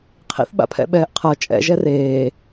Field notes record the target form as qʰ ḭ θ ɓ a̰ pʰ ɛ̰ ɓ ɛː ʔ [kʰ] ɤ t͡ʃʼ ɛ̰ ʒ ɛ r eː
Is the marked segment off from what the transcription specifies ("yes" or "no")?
yes